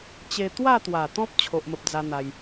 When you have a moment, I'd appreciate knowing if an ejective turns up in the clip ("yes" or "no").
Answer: no